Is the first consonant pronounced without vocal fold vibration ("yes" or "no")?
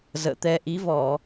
no